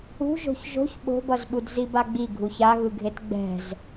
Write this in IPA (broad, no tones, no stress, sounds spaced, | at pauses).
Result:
ṳ ʒ o̤ ç ʒ o̤ ç ɓ o̤ b ʌ z ɓ u d z i b a ɡ͡b i ɡʱ u ç a ɣ ɯ ɡʱ e t ɡ͡b ɛ̤ z